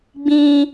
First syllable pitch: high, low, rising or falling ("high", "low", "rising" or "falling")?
high